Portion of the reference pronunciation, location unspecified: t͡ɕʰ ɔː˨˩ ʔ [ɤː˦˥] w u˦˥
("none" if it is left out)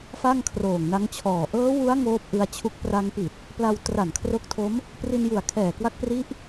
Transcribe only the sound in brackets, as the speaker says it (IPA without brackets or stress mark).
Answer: ɤː˦˥